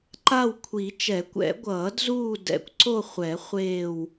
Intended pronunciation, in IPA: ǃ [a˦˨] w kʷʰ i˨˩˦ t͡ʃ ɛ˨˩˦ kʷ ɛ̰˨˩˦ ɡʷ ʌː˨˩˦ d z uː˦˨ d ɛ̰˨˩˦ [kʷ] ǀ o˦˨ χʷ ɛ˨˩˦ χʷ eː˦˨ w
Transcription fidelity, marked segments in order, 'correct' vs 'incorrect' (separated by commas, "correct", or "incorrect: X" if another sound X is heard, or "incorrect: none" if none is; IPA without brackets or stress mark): correct, correct